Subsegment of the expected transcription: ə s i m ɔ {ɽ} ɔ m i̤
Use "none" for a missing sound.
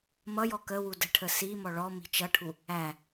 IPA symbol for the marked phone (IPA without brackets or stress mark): ɭ